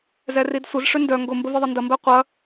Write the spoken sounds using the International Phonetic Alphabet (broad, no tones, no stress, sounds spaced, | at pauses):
z ɛ r i d sʷ ə z ʂ ʏ n d œ ŋ ɡ ʊ m b ə v i ðˤ ə n d ɐ m b ɛ qʷ ɐ